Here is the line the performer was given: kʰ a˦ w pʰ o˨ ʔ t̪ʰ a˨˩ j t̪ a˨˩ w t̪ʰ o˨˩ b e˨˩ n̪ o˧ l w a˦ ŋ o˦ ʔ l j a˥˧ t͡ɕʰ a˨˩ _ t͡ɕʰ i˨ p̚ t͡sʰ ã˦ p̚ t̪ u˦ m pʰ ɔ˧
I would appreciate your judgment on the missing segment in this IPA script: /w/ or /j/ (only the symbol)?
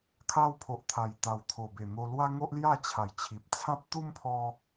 j